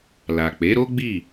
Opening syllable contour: low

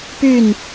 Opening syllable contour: falling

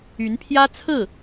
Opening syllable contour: rising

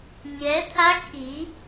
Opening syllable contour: rising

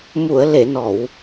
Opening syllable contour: low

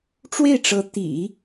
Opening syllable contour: falling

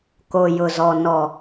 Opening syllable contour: low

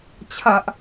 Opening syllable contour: high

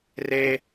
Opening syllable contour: high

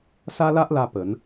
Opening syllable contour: high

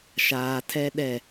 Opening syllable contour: low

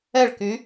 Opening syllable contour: falling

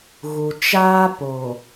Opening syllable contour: low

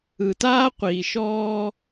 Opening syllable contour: low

